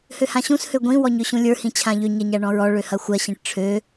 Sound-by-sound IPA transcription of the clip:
h ø h ã ɕ ũ s h ø ɡʷ ĩ w ɔ ɲ ø ɕ ũ lʲ ə˞ h ĩ t͡ɕʰ ã ʎ ø ɲ ɐ ɲ a ɳ ɔ̃ ɹ ɔ ɭ ø h ɐ xʷ ɜ ɕ ĩ ʈ ʈ͡ʂʰ ø

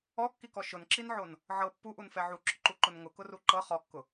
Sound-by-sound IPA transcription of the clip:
ɔ kː i k ɔ ʃ ʊ n ǁ i n ʕ o n | ʕ ɤ pː u ʔ u n f ɛ ʕ u ǁ ʊ ǃ u ǃ ʊ n ŋ ʊ k ʊ r u ǃ ɤ χ ɔ kː ʊ

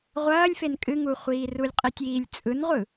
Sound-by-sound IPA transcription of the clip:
ʁʷ ɐː lʲ f e n kʼ ɨ ŋ u χʷ iː r u lʲ qʼ i tʲ iː lʲ t͡sʼ ɯ n ʁʷ ɯ

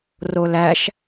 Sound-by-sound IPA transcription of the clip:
r o l æ ʃ

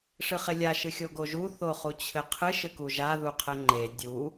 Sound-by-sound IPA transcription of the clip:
ʂ ɨ χ e lʲ a ʃ ɨ xʲ o ɡ o ʒ u θ o χ u t͡ɕʰ ɘ qʰ ɨ ʃ ɘ k u ʒ a ð u qʰ ɘ ŋ͡ǃ e dʲ u

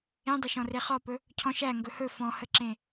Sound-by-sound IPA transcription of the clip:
ẽ dˤ ɵ ʃ ɔ̃ r e χ ɔ p ɵ | cʰ ɔ̃ ʃ æ ŋ ɡ ɵ h ɵ f ɔ̃ h ə ǁ ẽ

